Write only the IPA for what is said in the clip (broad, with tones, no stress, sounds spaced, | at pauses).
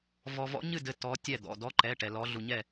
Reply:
v ɔ˧ v ɔ̰˧˥ ɲ ɨ˥˨ d ɘ˧ t ɔ˧˥ tʲ ɛ˥˨ d̪ ɔ̰˩˧˩ d ɔ˧˥ ǃ ɛ˩˧˩ ʈ ɛ˧ l ɔ˧˥ ɮ u˧ ɲ ɛ˥˨